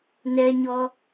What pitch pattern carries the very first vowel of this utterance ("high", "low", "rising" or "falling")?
high